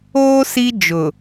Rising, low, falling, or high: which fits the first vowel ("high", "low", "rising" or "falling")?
high